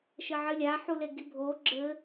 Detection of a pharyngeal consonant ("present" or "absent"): present